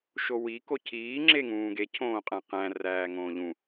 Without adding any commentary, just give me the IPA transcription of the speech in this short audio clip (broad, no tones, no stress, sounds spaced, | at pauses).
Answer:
ʃ o w i k o cʰ iː ŋ͡ǁ e ŋ ũː ɡ e cʰ õː qʼ æ̃ q æ̃ r æː ŋ õː ʎ ũ